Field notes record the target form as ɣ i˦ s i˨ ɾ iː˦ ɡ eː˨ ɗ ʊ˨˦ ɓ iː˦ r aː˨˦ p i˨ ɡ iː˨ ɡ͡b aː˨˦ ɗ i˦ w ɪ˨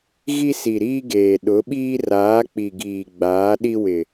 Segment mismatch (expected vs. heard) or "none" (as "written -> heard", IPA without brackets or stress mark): p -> k͡p